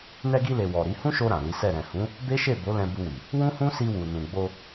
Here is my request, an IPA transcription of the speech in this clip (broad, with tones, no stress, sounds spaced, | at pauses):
n ɛ˧ ɡ i˧ l e˨ w ɔ˨ ɾ i˨˦ h ũ˦ ʃ o˧ ɾ ã˨ l i˨˦ s ɛ˦˨ ɾ ɛ̃˨ h ũ˨˦ | b e˦ ʃ e˦˨ b o˨˦ l ɛ̃˧ b u˧ w i˨ | w ũ˦ h ũ˦ s i˧ w u˨ n ũ˨ ɡ͡b o˧